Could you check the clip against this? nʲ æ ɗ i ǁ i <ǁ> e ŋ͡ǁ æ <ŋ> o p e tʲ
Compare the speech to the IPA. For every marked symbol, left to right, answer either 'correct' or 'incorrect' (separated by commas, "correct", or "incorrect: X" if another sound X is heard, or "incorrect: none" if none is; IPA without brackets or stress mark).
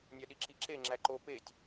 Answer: correct, incorrect: ǃ